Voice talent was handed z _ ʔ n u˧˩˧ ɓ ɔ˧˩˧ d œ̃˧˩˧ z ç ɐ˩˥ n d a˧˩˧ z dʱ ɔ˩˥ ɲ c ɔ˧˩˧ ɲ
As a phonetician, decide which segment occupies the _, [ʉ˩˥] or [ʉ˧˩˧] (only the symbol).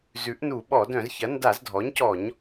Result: ʉ˩˥